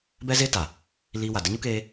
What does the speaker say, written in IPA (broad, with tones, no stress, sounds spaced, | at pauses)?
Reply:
b ɛ˦ z eː˦ t a˨ | l iː˧ w a˨ d ə˧ ɲ u˦ k eː˧